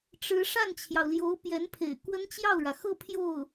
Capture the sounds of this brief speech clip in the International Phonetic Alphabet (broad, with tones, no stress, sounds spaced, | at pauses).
ʈ͡ʂ ɻ̩˧˥ ʂ a˥˩ n t͡ɕʰ j ɑ˩ ʊ̯ l j o˧˥ ʊ̯ p j ɛ˧˥ n pʰ ḛ˨˩ ɪ̯ k w ə˥ n t͡ɕ j ɑ˥˩ ʊ̯ ɻ ä˩ x ɤ˥˧ pʰ j o˥˩ ʊ̯